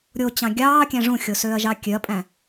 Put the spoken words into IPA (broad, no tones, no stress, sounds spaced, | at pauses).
ɾʲ o t͡ɕ ɑ̃ ɡʲ ɑː kʲ æ̃ ʐ ũ xʲ o s øː ɐ̯ ʒ ɑ kʲ ø ɐ̯ pʼ æ̃